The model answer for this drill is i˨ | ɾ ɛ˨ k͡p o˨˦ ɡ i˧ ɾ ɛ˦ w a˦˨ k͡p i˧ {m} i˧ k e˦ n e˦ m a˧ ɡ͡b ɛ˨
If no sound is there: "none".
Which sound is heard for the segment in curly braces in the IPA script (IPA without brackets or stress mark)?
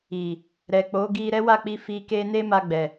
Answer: f